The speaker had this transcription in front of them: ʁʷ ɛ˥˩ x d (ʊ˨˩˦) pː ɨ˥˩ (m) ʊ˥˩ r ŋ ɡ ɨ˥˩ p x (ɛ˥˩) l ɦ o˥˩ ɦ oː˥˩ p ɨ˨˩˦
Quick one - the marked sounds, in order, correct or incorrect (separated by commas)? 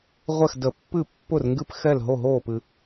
incorrect, incorrect, correct